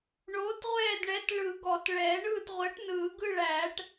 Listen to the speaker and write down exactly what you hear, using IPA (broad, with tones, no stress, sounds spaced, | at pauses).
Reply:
ɳ oː˨˥ t ʁʷ ɛː˦˨ d ɳ ɛ˨˥ t ɭ ɯ˨˩˦ ɡ ɔ˨˩˦ t ɭ ɛː˨˩˦ ɳ ɯː˦˨ t ʁʷ ɜ˨˥ ʈ n ɯː˨˩˦ ɡ ɯ˦˨ ɭ æː˨˩˦ ʈ